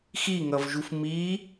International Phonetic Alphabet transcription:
xiŋʌvʒuf mi

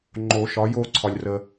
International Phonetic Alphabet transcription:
ŋ͡ǃo˨˩˦ ʃɒ˩˥jo˥˨ ǀʰɒ˨lʲrə˨

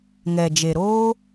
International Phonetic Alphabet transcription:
ŋɛ˨d͡ʒe˨ɾoː˦

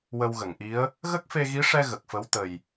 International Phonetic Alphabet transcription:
wə˧wɣə˨˩˨ŋʔi˧˥ə̯ | ɣə˦˥k̚fe˧ɣi˧˥ʂɛ˧ ɣə˨˩k̚fə˧˥wt̪ə˨˩j

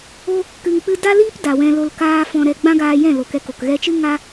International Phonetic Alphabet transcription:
o˦ | kɨ˧ŋk͡pɨ˦ da˦liː˦p da˨wɛ̃˧lo˧l kaː˦ fɔ̃˧ɾɛ˧ ɡ͡bã˦ɡaː˧jɛ̃˦˨ lo˨kɛ˧ko˨k ɣɛ˧t͡ʃɨ˦ ŋa˦

